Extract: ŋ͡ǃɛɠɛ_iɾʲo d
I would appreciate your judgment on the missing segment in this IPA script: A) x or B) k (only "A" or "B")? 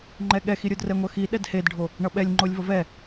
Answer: A